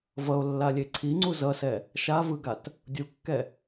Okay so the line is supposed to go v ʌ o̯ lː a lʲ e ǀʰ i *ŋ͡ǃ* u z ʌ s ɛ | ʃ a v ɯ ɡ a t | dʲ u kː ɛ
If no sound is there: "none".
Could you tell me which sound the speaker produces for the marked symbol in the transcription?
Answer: ŋ͡ǀ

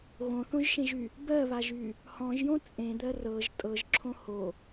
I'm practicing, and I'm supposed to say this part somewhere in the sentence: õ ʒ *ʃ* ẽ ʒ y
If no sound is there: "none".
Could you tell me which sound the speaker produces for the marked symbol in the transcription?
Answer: ʃ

